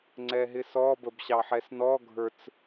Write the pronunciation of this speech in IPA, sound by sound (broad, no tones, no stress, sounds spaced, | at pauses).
ŋ͡ǀ ɛ ɦ ɪ s ɔ b ə b ɕ ɑ ħ ɛ s n ɔ ɡʱ ə˞ t͡s